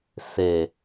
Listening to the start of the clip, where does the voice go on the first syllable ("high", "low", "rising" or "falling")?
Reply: low